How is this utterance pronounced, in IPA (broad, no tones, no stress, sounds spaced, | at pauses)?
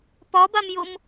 p ɒ b a m j o m